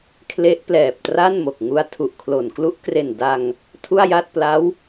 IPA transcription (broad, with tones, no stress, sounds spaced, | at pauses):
kʰ l e˦˥ ʔ p l ɛː˨˩ p̚ t r a˥˩ n m o˨˩ k̚ ŋ u˦˥ a̯ tʰ u˨˩ ʔ kʰ l o˨˩ n k l u˦˥ ʔ k r e˨˩ n d a˧ ŋ | tʰ u˥˩ a̯ j a˥˩ t̚ p l a˦˥ w